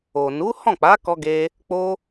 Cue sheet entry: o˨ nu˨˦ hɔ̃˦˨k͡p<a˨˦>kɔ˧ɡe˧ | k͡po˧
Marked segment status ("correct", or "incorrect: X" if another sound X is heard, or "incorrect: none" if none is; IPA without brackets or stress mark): correct